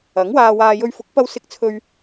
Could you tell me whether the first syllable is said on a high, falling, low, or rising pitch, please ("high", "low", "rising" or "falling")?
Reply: rising